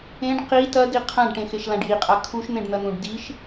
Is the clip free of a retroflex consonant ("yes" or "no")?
no